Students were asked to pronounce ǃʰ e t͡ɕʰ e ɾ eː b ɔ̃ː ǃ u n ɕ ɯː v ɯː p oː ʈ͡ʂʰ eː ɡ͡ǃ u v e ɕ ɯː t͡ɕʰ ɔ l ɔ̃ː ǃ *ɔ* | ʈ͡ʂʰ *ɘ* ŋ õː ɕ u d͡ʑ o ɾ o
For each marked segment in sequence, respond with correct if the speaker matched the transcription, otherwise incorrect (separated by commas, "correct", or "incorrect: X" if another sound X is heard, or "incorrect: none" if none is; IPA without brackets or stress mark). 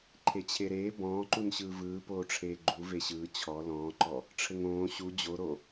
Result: correct, correct